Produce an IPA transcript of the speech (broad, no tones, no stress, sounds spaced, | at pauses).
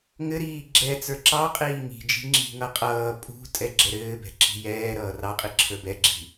ŋ ɘ ɾ iː ɡ͡ǁ ɛ t͡s ə˞ ǁ ɑ qʼ iː ŋ i̤ d͡ʒ i̤ ŋ͡ǁ i̤ ŋ ʌ qʼ ʌː pʼ ṳ tʼ ɛ ɡ͡ǁ ɛ ɾ ɘː b ɛ̤ ǁ i̤ j ɛː ɾ ʌː r ɑ qʼ i ǁʰ ə˞ b ɛ ɡ͡ǁ i̤